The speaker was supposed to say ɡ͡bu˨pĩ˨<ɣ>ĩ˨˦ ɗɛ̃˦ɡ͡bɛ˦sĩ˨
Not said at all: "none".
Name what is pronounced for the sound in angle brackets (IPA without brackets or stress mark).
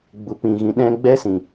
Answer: ɣ